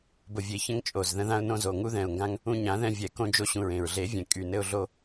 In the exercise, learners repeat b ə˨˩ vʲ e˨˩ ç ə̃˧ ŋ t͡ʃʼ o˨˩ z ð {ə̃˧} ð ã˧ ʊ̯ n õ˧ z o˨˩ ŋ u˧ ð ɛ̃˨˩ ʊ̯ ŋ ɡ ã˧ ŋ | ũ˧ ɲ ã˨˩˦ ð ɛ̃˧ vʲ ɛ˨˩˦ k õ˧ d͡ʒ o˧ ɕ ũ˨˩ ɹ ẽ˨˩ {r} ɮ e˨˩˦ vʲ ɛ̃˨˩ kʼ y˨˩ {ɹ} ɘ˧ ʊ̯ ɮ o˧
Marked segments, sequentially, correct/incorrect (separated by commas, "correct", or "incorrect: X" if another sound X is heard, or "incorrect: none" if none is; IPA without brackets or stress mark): correct, incorrect: ɹ, incorrect: n